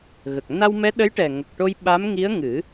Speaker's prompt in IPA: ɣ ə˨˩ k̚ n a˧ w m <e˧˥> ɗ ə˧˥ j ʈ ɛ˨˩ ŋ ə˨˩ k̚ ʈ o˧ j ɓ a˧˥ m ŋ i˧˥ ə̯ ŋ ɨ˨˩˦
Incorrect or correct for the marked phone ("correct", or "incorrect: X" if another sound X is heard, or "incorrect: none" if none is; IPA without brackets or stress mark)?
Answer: incorrect: ɛ˧˥